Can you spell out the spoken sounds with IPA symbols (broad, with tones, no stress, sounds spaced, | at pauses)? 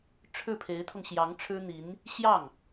ʈ͡ʂʰ ɻ̩˥˩ pʰ e˧˥ ɪ̯ t̪ʰ ʊ˧ ŋ ɕ j ɑ˧˥ ŋ ʈ͡ʂʰ ɻ̩˥ n̪ i˧˥ n | ɕ j ɑ˥˩ ŋ